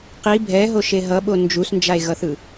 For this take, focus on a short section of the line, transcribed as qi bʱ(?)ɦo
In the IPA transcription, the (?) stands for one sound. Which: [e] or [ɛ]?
ɛ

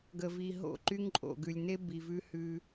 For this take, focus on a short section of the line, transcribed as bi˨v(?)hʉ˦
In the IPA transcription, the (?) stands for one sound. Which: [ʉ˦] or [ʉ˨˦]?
ʉ˦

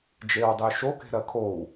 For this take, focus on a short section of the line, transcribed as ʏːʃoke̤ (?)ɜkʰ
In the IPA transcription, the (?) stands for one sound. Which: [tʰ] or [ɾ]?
ɾ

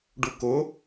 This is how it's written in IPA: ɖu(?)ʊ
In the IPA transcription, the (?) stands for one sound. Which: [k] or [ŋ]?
k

